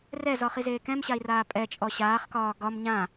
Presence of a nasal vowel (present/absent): present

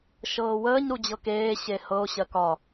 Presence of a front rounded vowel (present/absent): absent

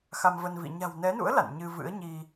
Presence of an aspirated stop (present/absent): absent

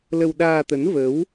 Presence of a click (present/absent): absent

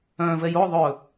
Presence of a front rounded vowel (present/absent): present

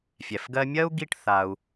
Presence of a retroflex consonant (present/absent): present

